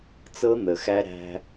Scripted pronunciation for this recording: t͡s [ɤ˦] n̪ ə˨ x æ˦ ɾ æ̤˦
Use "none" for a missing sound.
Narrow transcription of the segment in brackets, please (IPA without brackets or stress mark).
ɤ˦